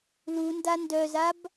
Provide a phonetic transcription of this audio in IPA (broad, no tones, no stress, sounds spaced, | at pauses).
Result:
l u n d a n d œ z a b